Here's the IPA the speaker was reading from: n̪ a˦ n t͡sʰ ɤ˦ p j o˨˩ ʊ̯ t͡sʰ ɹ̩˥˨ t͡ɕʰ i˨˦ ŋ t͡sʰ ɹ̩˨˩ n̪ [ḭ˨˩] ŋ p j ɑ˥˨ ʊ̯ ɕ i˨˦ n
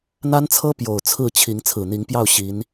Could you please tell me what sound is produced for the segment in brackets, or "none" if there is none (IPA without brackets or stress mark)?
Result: i˨˦